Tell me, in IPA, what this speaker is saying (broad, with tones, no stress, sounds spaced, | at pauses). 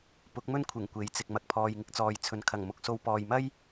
p ʊ˨˥ k̚ m ɵ˥ n kʷʰ ɪ˨˩ ŋ kʷ e˨˥ j t͡s ɪ˨ k̚ m ɐ˨ k̚ pʰ ɔː˨ j ŋ ɪ˧ k̚ t͡s ɔː˨ j t͡sʰ ɵ˨˧ n kʰ ɐ˨˩ ŋ m ʊ˨˥ k̚ s o˧ w p ɔː˨ j m ɐ˥ j